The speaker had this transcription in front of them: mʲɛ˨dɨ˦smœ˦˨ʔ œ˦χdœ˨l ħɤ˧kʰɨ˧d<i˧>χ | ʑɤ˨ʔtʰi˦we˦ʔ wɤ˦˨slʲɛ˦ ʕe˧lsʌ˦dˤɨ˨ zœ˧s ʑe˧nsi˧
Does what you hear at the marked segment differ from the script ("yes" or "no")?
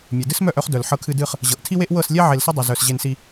yes